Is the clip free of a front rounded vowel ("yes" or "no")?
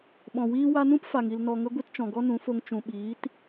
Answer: yes